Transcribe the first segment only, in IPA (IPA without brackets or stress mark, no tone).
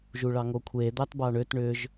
ʒ